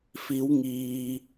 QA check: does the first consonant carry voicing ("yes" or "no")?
no